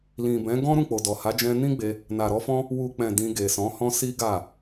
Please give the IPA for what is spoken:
l ĩ˨ b ɛ̃˨˦ ɡ ɔ̃˦ ɾ ũ˦˨ k͡p o˨ d ɔ˨ h a˨˦ d͡ʒ ɛ̃˧ n ĩ˦ ɡ͡b e˧ | n a˨ ɾ ɔ˧ f ɔ̃˦ | w u˨ k͡p ɛ̃˨ d ĩ˧ ɡ e˨ s ɔ̃˨˦ h ɔ̃˦ s i˦ ɡ a˦˨

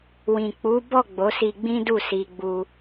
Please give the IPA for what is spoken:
w ĩ˨ k͡p u˨˦ b ɔ˦˨ ɡ͡b o˨˦ s i˧ ɡ͡b ĩ˦ d u˦˨ s i˧ ɡ͡b u˧

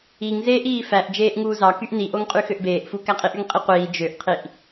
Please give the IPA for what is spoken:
i ŋ z eː ʔ iː f æ ʔ d͡ʒ eː ʔ ŋ uː z ɑ k y ʔ n i ʔ o ŋ qʼ y x ø ʔ b eː ʔ f u k æ qʼ i ʔ y ŋ qʼ i qʷ iː d͡ʒ ø ʔ qʰ i ʔ

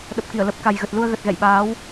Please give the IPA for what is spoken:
ɗ ə˨˩ p̚ k i˧˩ ə̯ l ə˨˩ p̚ k a˨˩ j ɣ ə˨˩ t̚ l u˧ ə̯ ɣ ə˨˩ t̚ ɣ ɛ̰˧˨ j ɓ aː˨˦ w

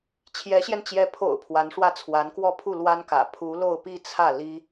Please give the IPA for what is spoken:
t͡ɕʰ j ɛ˧˥ ɕ j ɛ˧ n t͡ɕ j ɛ˧˥ pʰ o̰˨˩ ʊ̯ pʰ w a˧˥ n ʂ w ä˥˩ t͡sʰ w a˧˥ n k w ɔ˥ pʰ u˥˩ l w a˥ n k ä̰˨˩ pʰ u˧˥ l o˥˧ ʊ̯ p i˥˧ t͡sʰ ä˥˩ l i˥

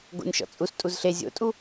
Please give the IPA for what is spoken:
ɡ o̰ nʲ ʃ ɔ̰ t͡sʼ u s tʼ u z ɬ e zʲ o̰ tʼ u

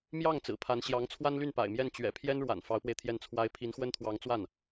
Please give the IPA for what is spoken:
m j ɑ˥˩ ŋ t͡s ɹ̩˨˩ pʰ a˧˥ n ɕ j ɑ˧˥ ŋ t͡sʰ w a˥ n l y˥˩ n p a̰˨˩ ɪ̯ m j ɛ˥˩ n t͡ɕ ɥ ɛ̰˨˩ pʰ j ɛ˥ n ɻ w a̰˨˩ n f ɑ˧˥ ʊ̯ p w e˧ ɪ̯ t̪ʰ j ɛ˥˩ n t͡sʰ w a˥ ɪ̯ pʰ i˧˥ n x w ə˥ n t̪ʰ w ɑ˧˥ ŋ t͡s w a˥˩ n

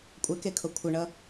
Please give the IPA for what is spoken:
kʷʼ ɛ k e kʰ o kʷʰ ɛ ɳ ʌ

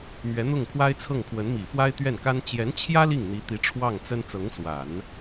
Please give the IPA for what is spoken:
m ɥ ɛ˧˥ n̪ ʊ˥˩ ŋ kʰ w a˥ ɪ̯ t͡sʰ ɤ˥˩ ŋ kʰ w ə˧˥ n m i˨˩ f w a˥ ɪ̯ t̪ ɥ ɛ˥˩ n k a˥ n t͡ɕ j ɛ˧˥ n t͡ɕʰ j ä˥ l i˥˩ ŋ n̪ i˧˥ t̪ i˧˥ ʈ͡ʂʰ w ɑ˥˩ ŋ t͡s ə˥ n t͡s ɤ˧˥ ŋ s w a˨˩˦ n

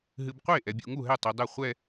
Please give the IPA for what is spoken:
ɦ ɨ˨ b qʷ e˥˩ ʔ ɛ˨ bʲ ṵ˨ ŋ u˥˩ ɦ ɛ˥˩ tˤ i˨ dˤ ɛ˥˩ χʷ ɛ˥˧

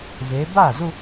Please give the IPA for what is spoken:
v e˩˧ b a˥˩ z u˥˧

